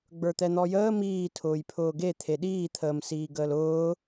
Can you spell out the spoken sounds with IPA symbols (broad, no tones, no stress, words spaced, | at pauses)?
ɡ͡bə˞t̪ɛn̪ɔjəː miːtʰʊːjpʰʊː ɡe t̪ʰeɗiːt̪ʰəːmsiː ɡəːlʊː